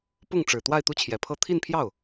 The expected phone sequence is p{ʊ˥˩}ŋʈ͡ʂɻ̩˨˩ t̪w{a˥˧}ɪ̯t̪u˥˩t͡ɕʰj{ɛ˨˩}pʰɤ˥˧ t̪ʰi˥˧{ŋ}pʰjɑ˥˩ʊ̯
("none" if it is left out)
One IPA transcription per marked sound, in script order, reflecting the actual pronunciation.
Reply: ʊ˥˩, a˥˧, ɛ˨˩, n

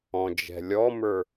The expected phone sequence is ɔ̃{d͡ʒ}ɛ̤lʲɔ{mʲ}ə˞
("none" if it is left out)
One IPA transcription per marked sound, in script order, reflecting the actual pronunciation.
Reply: d͡ʒ, m

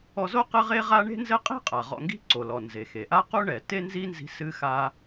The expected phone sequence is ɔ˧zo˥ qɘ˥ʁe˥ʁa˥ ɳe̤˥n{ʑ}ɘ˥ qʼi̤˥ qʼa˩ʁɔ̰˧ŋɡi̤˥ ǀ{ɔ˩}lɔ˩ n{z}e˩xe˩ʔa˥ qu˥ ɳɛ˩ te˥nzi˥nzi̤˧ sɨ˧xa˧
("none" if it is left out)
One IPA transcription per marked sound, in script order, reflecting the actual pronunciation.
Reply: z, o˩, z

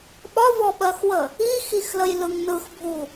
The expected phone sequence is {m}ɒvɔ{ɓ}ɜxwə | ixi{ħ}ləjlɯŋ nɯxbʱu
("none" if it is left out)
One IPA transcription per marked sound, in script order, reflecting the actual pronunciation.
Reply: ɓ, ɓ, x

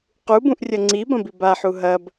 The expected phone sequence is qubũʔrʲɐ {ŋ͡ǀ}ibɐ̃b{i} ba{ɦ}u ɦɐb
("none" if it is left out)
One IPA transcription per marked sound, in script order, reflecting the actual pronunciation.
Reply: ŋ͡ǀ, i, ħ

